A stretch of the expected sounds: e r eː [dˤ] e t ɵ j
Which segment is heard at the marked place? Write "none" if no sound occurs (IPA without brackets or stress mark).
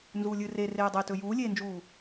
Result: dˤ